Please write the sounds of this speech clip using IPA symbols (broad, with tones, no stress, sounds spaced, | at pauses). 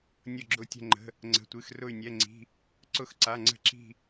nʲ ʊ˥˧ ɡ͡ǁ ʊ˥˧ tʲ ə̤˥˧ ŋ͡ǃ ə̤˧˥˧ | ŋ͡ǀ ə̤˧˥˧ tʷ ɨ˧˥˧ x r ʊ˥˧ y̯ nʲ ɛ˧˥˧ ŋ͡ǀ i̤˧˥˧ | ǀ ʊ˥˧ x ǀ a˧˥˧ ŋ͡ǀ ə̤˥˧ ǁ i̤˥˧